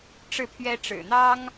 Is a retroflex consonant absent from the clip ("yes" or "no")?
no